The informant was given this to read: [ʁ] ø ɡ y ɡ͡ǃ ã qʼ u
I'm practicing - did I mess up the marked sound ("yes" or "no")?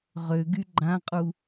no